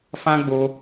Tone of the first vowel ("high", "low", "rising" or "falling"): high